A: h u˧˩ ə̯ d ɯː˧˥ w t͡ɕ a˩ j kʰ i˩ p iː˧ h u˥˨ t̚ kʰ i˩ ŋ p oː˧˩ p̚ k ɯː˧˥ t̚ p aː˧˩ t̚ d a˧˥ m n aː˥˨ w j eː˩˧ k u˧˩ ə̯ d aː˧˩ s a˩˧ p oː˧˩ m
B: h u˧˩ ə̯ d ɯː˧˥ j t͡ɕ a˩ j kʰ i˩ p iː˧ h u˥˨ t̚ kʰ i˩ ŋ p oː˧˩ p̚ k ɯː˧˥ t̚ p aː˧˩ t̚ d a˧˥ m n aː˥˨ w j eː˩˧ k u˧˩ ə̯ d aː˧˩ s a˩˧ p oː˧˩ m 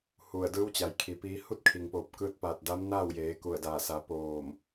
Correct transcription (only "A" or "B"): A